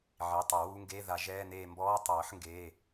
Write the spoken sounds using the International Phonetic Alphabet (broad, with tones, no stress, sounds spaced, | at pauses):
ʕ i˩˧˩ tˤ e˨˩˦ w u˧˥˧ ŋ ɡ eː˧˥˧ ð a˨˩˦ ʒ ɛː˧˥˧ n eː˦˨ m b ɔː˧˥˧ tˤ ɤː˨˩˦ ħ ŋ ɡ eː˩˧˩